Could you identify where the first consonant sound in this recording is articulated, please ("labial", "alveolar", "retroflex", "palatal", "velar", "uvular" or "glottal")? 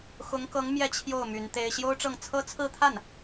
velar